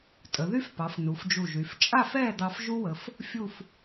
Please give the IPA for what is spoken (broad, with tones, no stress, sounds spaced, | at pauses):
tʼ ə˩˧ ð y˥ f p ɑ˩˧ f n u˩˧ f d͡ʒ u˧˩ ʒ y˩˧ f t͡ʃʼ a˥˧ f ɛː˥˧ d̪ ɑ˧ f ʒ u˥ w ə˩˧ f | fʲ u˥˧ f